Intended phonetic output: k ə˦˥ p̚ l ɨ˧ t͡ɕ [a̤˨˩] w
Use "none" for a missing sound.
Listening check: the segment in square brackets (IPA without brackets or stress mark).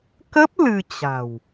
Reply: a̤˨˩